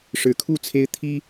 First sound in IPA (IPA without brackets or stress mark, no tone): ʂ